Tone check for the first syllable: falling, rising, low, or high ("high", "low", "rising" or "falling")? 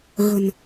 low